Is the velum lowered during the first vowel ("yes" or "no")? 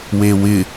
no